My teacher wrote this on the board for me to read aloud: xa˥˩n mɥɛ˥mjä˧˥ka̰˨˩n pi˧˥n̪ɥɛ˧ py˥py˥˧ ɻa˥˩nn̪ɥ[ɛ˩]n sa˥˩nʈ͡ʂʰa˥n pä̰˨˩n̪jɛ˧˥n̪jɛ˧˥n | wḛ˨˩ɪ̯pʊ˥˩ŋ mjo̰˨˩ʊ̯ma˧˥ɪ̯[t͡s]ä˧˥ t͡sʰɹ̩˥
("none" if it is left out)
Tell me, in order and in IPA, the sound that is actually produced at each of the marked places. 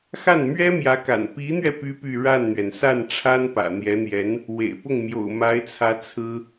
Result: ɛ˩, t͡sʰ

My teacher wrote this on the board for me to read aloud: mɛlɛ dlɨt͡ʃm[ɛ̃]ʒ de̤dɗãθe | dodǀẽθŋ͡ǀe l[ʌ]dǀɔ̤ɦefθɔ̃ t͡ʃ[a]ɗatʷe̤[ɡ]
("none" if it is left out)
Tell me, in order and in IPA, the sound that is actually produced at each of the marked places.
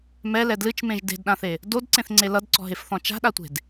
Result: ẽ, ʌ, a̤, d

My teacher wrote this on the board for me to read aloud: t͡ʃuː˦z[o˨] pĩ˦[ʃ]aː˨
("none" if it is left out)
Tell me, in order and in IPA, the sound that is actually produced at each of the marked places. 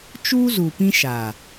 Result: u˨, ʃ

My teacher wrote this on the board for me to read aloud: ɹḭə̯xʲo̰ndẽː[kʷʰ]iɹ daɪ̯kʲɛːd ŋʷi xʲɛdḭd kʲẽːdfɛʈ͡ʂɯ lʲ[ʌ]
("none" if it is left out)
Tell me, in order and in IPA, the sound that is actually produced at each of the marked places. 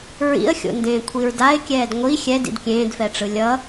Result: kʷʰ, ʌ

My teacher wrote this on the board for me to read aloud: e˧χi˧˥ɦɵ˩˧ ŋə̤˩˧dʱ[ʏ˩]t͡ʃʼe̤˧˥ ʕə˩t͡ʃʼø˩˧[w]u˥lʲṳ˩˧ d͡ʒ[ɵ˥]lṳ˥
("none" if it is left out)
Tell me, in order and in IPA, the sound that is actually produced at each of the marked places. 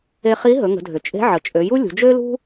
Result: ʏ˩, j, ø˥

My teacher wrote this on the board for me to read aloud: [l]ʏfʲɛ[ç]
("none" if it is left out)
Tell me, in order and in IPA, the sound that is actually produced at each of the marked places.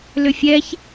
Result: l, ç

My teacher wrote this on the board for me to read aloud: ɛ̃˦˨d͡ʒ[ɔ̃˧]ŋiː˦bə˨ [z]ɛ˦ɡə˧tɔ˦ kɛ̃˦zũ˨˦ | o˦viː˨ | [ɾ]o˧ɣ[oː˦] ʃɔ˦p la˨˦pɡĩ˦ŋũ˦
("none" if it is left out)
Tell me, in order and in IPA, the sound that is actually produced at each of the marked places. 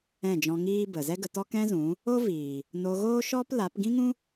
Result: ɔ̃˧, z, n, oː˦

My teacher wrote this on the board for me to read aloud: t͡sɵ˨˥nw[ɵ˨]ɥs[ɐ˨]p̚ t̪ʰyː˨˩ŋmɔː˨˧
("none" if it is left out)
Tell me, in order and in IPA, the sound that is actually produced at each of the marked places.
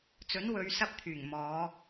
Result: ɵ˨˧, ɐ˧

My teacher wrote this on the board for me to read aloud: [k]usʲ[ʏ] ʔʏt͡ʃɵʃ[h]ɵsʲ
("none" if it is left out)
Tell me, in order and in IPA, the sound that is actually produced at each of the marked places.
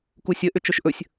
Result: k, ə, ʔ

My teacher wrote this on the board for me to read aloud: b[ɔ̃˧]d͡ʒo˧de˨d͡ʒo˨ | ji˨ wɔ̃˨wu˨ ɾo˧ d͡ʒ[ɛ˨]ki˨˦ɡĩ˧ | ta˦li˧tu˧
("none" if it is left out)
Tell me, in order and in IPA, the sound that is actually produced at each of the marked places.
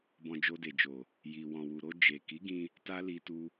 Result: ɔ̃˧, e˨

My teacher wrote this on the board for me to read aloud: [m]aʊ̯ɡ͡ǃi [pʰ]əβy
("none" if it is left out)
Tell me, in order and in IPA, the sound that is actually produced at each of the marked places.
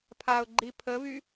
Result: pʰ, pʰ

